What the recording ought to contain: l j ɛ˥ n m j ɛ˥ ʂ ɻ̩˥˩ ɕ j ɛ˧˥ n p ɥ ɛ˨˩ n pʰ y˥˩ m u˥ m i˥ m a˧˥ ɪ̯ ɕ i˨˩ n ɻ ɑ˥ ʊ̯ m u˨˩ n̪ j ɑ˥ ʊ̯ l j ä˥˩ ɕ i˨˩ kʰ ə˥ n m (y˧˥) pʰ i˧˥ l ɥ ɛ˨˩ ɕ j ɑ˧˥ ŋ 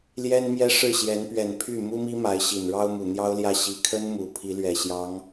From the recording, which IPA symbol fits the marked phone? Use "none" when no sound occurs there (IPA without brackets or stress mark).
u˧˥